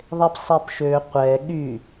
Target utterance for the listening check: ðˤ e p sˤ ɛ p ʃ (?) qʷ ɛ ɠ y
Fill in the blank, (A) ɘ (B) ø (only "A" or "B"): B